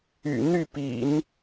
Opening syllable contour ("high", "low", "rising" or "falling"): low